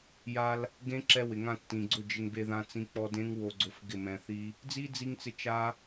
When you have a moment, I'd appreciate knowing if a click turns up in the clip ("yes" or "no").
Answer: yes